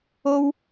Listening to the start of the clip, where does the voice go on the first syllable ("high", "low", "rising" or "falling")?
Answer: high